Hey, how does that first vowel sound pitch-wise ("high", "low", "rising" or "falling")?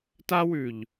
high